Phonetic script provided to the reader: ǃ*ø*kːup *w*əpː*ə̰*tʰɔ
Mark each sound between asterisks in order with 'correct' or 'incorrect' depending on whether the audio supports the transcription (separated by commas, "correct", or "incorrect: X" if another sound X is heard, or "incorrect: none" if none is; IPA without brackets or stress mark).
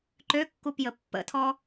correct, incorrect: j, correct